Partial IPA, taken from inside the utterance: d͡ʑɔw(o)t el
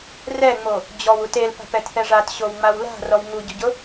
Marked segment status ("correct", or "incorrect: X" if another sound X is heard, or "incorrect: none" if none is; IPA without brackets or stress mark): incorrect: u